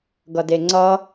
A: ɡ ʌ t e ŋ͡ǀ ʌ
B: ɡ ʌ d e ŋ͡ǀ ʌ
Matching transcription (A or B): B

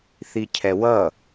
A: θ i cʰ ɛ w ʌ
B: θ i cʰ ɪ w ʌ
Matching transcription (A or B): A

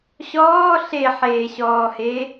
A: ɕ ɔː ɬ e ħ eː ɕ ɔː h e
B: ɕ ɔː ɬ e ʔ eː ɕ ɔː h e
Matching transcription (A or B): A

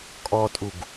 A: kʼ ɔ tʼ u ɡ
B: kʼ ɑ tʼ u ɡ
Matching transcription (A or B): A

